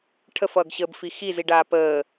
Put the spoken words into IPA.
ʈʰ ə f ʌː ɡ ɕ əː b f i x i z i ɖ aː p əː

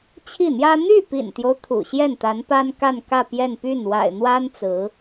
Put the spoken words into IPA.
t͡ɕʰ i˥˩ n̪ j ä˥ n̪ y˥˩ p ḭ˨˩ n t̪ j o˦ ʊ̯ t̪ʰ ṵ˨˩ ɕ j ɛ˥˩ n t̪ a˧˥ n p a˥ n k a˥˧ n k ä˥˧ p j ɛ˥˧ n p y˥˩ n w a̰˨˩ ɪ̯ n̪ w a˥ n t͡s ɹ̩˧˥

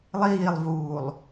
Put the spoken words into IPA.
lˠ iː lˠ v uː lˠ

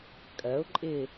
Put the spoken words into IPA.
kʼ ɜ ʊ̯ ǃʼ ɪ

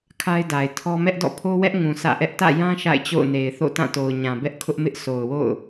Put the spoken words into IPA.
kʰ a˦ ɪ̯ d a˨ ɪ̯ tʰ ɔ˦ m ɛ˦ ʔ d ɔ̰˦˨ pʰ o˦ w ɛ˦ ʔ ŋ ũ˨ sʰ ä̰˦˨ ʔ ɛ˦ ʔ t ä̰˦˨ j ã˦ ʃ a̰˦˨ ɪ̯ t͡ɕ o̰˦˨ ʊ̯ n e˨ ɪ̯ θ o̰˦˨ t ã˦˨ t o˨ ʊ̯ ɲ ã˨ b ɛ˦ ʔ kʰ ʊ˦ ʔ m ɪ˦ ʔ s o˨ ʊ̯ w o̰˦˨ ʊ̯

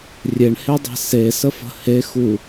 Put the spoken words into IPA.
rʲ e ɳ h e dˤ e̤ s e s ə f ə̤ h e x u

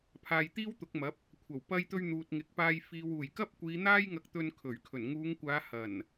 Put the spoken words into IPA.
pʰ aː˨ j t̪ iː˥ w t̪ ʊ˨˥ k̚ m ɐ˨˥ p̚ | kʷʰ ɐ˨˩ w p ɐ˧ j t̪ ɵ˧ ɥ n̪ uː˨ t̚ ŋ ɪ˨ k̚ p aː˧ j f iː˨ w uː˨˩ j k ɐ˥ p̚ kʷ iː˨˧ n̪ aː˥ j ŋ ɐ˧ k̚ t̪ ɵ˧ n kʰ ɵ˨˩ ɥ kʰ ɵ˨˩ n ŋ uː˨˧ ŋ kʷ aː˨˧ h ɐ˨˩ n

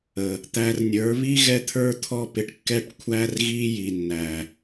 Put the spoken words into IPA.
ə˨ | t̪ æ˧ r nʲ ə˞˨˦ β i˦ ɣ ɛ˦ t̪ʰ ə˞˦ t̪ʰ ɔ˦ p ɪ˧ ʈ kː ɛ˦ ʈ kʷʰ æ˦ r ɣ i˦ j i˨ nː æ˨

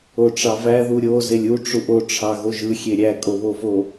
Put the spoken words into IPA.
o ʈ͡ʂ ɑ v æ ð u ɾʲ o z e lʲ u ʈ͡ʂ u ʔ o ʈ͡ʂʰ ɑ ɣ o ʒ ɯ xʲ e ɾʲ æ kʼ o β o v o

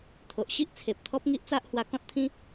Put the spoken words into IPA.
t̪ʰ o˨ ʔ ɕ i˦ ʔ t͡sʰ e˨ p̚ t̪ʰ ɔ˦ p̚ ŋ i˦ ʔ t͡s a˦ ʔ h w a˧ k ɔ̃˦ t̚ t̪ʰ ĩ˦

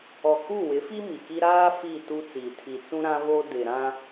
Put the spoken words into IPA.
ɔ˨ k u˦˨ w ɪ˨˦ f i˦ m i˨ k i˦ ɾ aː˦ f i˦˨ t u˦ t͡s i˨ tʰ i˨ t͡s ũ˦ ɾ ã˦ β o˦ d ɪ˨ ɾ ã˦

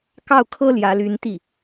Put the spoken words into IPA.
k ɑ˥˩ ʊ̯ kʰ ɤ˥ l j ä˧˥ l y˧˥ n t̪ i˥˩

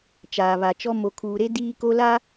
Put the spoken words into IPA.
t͡ʃ aː˨ β a˨ t͡ʃ ɔ˦ m o˨ kʰ uː˨ ɾ e˦ d iː˦ k o˦ l a˦

